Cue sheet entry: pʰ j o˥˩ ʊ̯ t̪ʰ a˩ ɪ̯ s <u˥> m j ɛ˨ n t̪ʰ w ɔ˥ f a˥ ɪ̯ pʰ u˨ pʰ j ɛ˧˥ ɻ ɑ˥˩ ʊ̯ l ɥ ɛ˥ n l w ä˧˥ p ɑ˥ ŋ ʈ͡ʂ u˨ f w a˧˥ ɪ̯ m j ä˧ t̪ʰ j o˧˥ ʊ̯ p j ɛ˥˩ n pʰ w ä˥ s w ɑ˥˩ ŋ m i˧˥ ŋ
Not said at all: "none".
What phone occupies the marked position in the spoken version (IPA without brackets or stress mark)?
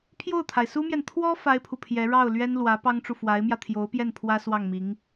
u˥